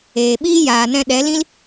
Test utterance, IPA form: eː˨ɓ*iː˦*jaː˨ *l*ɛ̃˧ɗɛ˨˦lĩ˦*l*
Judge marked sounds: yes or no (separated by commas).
yes, no, yes